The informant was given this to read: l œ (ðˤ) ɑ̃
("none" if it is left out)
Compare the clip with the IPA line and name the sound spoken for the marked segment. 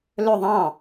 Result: ðˤ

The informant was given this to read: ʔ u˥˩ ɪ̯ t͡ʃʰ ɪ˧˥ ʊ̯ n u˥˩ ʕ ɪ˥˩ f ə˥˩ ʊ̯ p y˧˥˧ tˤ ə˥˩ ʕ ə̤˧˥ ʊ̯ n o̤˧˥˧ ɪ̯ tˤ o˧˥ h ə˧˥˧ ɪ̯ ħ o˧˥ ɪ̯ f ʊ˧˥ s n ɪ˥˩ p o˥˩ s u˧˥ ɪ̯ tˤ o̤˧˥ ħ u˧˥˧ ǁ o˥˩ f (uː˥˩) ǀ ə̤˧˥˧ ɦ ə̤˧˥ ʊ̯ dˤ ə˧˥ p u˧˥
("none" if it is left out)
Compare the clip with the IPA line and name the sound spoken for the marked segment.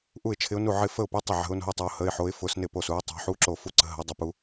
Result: u˥˩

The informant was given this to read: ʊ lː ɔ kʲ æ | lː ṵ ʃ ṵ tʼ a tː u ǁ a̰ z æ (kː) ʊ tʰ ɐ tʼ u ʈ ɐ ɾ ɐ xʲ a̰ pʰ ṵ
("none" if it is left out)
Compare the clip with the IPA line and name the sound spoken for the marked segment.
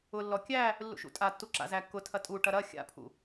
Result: kː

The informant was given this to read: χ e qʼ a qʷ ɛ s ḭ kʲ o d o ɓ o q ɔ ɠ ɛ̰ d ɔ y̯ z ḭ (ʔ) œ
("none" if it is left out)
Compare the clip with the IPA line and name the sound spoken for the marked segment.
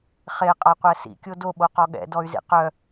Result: q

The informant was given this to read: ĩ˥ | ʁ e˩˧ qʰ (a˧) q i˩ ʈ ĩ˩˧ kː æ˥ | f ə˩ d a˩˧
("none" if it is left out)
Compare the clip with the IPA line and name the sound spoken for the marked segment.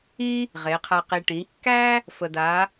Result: a˧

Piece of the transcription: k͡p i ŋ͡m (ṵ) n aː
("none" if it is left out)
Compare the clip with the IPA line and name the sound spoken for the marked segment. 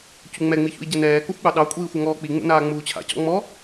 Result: ṵ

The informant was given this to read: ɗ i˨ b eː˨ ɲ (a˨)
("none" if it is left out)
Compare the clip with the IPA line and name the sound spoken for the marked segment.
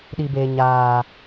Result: aː˨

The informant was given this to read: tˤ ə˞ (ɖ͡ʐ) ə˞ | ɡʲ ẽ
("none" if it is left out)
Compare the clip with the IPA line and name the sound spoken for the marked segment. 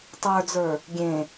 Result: d͡z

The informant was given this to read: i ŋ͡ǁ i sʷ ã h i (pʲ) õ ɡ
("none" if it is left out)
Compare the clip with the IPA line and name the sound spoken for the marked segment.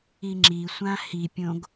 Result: pʲ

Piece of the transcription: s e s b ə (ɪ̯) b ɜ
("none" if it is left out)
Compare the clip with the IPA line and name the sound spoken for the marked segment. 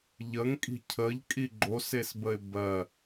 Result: ɪ̯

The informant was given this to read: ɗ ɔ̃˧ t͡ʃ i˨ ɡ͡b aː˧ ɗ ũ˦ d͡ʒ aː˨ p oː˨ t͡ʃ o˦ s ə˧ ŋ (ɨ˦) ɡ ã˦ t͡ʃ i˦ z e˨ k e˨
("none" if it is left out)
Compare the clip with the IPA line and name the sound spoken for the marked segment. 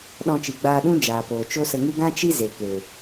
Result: ɨ˦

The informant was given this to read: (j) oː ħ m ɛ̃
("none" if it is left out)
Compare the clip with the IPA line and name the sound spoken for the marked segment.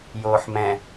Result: j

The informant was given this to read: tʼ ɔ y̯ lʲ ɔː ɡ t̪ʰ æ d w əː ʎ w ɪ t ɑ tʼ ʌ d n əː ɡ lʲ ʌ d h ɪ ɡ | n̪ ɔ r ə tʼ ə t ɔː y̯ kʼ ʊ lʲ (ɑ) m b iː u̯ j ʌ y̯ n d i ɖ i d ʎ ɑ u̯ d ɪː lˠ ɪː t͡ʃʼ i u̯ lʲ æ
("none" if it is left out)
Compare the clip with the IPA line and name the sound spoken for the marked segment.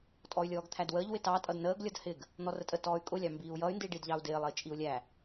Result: ɑ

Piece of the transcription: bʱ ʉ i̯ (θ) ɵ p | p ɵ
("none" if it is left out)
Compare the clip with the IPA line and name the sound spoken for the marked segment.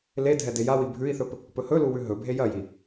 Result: θ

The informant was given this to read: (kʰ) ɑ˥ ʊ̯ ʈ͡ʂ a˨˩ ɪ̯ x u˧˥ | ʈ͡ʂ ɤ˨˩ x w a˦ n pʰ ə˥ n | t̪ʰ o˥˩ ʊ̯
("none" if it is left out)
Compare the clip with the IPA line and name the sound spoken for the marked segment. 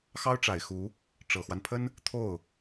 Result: x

